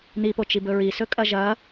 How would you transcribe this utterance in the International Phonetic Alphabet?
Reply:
n̪ i p o t͡ʃ i b ɵ ɹ i s ɵ kʼ ɐ ʒ ɐ

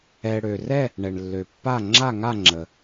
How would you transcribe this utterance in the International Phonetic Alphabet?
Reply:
ɛ˨ ɽ ø˨ r ɛ˥˧ | ɳ ɛ˨ ɳ lː ø˨ pː a˥˧ ŋ͡ǁ a˥˧ ŋ a˥˧ ŋ͡ǁ ə˨

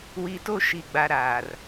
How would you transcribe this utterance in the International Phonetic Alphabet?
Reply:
w i˨ t o˦ ʃ i˨ ɡ͡b a˨ ɾ aː˨ r

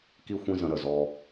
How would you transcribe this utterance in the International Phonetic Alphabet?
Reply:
k i˦ xʷ ĩ˦ z ə̃˧ ɾ ə˨ z ɔ˧

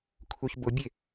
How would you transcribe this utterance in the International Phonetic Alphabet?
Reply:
kʰ u ç b ʊ bʲ e

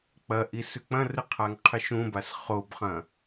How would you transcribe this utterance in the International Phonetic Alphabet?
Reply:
k͡p ɐ ʔ i s ʉ k͡p ɐ̃ r ɨ qʰ a ŋ qʰ ɨ ʃ ũ b a s χ o b χ ɐ̃

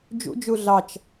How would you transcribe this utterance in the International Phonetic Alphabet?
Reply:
d͡ʒ ṵ d͡ʒ u ɮ ɑ t͡ʃ

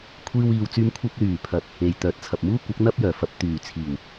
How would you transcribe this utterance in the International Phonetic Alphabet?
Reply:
kʷʰ iː˧ w iː˨ w t͡s yː˧ m kʷʰ ɐ˧ p̚ l yː˨˩ pʰ ɐ˨ t̚ | e˨ j t̪ œː˨ t̚ t͡sʰ ɐ˨ p̚ m uː˥ kʷ ɐ˨˥ k̚ n̪ ɐ˥ p̚ j œː˨˩ f ɐ˧ p̚ t̪ yː˨˩ t͡sʰ iː˨˩ w

